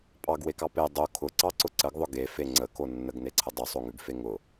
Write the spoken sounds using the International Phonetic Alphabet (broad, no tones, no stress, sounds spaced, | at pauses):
pʼ ɑ ɡ w e k ɑ p e dˤ o kʰ ʊ ǀ ɑ ǀ ʊ ǀ ə ɡ ðˤ ʊ ɡ e f e ŋ͡ǀ ə k o nː ə ɡ n e ǀʰ ə dˤ ʉ sˤ o ŋ ʉ ɡ f e ŋ ʊ